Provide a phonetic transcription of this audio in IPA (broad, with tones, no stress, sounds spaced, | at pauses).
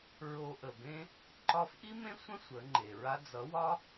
ɹ o˧ ʔ ə˨ b ẽ˦ | ǃ ɒ˦ f ʔ i˦ m ẽ˦ sʷ ə̃˦ sʷ ə˨˦ ŋ͡ǃ e˨ ɹ a˦ d͡z ʌ˨˦ w ɒ˦